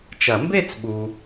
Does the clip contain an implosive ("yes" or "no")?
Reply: yes